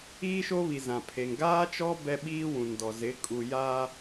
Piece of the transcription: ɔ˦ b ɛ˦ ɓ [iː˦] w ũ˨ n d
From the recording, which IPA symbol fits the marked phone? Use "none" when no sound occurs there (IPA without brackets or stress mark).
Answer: iː˦